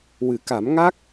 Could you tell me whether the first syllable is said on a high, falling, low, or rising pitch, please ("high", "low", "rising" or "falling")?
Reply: low